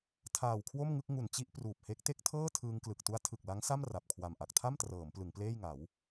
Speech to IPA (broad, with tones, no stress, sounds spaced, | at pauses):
tʰ aː˨˩ w kʰ w o˥˩ m ŋ ɯ˥˩ k̚ ŋ u˨˩ n t͡ɕ i˥˩ ʔ p r uː˨˩ p̚ h e˦˥ k̚ t e˥˩ k̚ tʰ ɤː˥˩ tʰ ɯː˧ ŋ k l ɯ˨˩ k̚ t u˦˥ a̯ tʰ ɯ˨˩ k̚ l a˦˥ ŋ s a˥˩ m r a˨˩ p̚ kʰ w a˨˩ m ʔ a˨˩ k̚ tʰ a˥˩ m t r ɤː˩˦ m p l ɯ˩˦ ŋ p l eː˥˩ j ŋ a˩˦ w